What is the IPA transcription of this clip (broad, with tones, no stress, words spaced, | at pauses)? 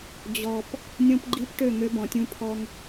d͡ʑɔ˨p | nʲõ˦pɡ͡ǃi˦pʈø˦˨ ŋø˦bɔ̃˨tʲũ˦pʰɔ˦ŋ